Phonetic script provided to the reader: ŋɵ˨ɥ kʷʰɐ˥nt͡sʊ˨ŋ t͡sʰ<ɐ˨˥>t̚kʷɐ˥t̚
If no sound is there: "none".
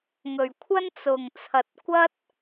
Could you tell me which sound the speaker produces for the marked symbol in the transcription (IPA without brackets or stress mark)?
ɐ˨